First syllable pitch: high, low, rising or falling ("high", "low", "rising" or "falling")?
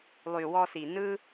low